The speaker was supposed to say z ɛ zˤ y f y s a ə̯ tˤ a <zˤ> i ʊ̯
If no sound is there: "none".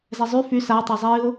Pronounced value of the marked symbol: zˤ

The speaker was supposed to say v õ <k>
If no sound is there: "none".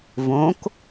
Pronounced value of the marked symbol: k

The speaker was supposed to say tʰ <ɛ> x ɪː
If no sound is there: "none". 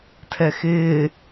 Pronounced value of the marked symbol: ɛ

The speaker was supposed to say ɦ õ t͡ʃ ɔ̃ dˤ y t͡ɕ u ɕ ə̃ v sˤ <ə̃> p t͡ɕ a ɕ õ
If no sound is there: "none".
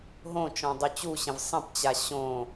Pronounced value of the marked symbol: ə̃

